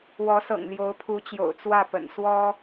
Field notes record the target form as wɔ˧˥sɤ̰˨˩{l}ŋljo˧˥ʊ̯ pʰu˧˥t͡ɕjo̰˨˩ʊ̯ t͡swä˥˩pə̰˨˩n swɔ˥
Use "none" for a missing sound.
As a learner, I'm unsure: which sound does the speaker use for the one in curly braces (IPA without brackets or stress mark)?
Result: none